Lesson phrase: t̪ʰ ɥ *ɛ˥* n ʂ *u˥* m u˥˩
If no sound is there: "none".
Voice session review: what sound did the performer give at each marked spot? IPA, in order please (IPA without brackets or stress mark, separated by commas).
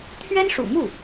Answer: ɛ˥, ṵ˨˩